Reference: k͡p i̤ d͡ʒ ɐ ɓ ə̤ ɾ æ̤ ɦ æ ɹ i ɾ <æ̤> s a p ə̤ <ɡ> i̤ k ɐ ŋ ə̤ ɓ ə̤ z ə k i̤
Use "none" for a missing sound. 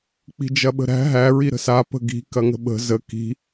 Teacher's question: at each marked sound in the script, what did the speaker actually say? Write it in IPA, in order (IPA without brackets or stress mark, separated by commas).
ə̤, ɡ